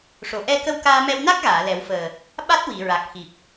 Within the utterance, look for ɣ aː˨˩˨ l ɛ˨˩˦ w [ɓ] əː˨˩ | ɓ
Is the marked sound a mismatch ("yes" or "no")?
yes